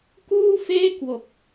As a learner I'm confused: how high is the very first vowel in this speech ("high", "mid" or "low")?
high